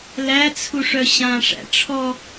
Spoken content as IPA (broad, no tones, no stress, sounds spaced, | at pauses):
l æ t͡sʰ u ʂ œ ɕ ã ʂ æ̰ ʈ͡ʂʰ ɔ